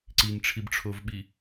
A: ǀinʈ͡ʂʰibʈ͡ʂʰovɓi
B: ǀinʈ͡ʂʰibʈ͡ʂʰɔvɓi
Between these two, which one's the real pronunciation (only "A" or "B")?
A